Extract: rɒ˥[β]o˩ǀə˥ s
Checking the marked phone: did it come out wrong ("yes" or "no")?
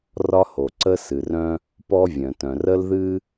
yes